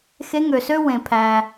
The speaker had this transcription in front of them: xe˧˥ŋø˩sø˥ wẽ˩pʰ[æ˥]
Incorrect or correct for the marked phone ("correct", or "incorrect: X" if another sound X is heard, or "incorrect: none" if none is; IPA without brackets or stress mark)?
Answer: incorrect: æ˩